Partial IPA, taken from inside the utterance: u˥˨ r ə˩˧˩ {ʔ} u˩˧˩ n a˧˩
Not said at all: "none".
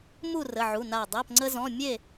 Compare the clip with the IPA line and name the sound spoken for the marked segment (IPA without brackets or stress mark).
ʕ